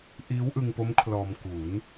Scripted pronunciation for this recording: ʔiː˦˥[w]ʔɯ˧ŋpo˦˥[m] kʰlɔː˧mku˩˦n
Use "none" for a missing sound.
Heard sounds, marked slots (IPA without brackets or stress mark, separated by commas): w, m